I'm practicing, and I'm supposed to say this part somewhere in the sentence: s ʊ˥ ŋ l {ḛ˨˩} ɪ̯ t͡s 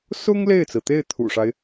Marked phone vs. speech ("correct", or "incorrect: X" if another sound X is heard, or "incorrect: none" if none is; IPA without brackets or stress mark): incorrect: e˥˩